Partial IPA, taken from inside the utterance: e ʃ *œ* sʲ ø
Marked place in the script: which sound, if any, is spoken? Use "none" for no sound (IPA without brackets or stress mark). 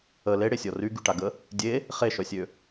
œ